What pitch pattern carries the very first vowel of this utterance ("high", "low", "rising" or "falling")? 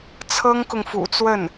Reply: high